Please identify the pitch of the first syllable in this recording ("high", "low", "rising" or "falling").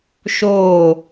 falling